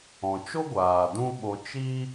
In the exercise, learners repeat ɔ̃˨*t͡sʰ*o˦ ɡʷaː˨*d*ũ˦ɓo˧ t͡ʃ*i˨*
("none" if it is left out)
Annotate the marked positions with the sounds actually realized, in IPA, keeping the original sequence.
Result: t͡ʃ, d, i˦

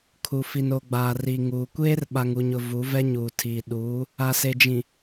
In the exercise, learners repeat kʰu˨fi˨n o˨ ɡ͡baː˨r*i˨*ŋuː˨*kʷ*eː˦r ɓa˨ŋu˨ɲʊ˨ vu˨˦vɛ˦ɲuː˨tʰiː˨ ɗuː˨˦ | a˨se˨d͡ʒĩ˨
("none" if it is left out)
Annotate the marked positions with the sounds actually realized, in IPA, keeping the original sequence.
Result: i˨, kʷ

